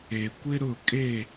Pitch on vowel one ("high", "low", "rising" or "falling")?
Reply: low